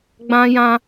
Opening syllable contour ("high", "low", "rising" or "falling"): high